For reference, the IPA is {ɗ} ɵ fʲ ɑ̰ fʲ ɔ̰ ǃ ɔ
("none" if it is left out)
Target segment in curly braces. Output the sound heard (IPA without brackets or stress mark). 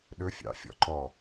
ɗ